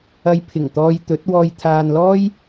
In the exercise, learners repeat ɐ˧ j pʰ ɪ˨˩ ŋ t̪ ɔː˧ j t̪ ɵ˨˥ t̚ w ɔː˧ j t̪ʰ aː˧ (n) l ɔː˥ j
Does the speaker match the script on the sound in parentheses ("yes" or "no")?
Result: yes